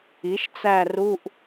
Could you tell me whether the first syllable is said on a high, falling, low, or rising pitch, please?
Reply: rising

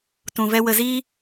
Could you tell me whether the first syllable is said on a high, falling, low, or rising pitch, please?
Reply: low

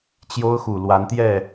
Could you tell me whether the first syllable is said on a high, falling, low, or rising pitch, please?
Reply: high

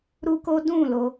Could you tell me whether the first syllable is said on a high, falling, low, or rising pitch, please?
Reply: high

